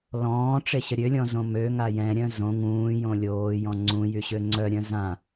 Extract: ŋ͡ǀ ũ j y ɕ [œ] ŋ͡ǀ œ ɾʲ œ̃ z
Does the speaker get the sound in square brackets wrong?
yes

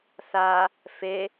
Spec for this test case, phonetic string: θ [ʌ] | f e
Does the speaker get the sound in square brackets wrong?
yes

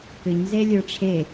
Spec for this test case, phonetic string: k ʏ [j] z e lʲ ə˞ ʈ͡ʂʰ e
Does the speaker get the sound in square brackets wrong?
yes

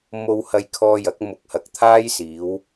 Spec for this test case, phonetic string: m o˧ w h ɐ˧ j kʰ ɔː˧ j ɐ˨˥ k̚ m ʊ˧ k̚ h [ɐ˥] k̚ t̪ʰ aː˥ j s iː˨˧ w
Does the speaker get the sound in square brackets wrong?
yes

